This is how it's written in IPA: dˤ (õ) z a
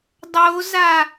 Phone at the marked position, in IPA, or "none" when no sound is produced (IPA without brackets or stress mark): o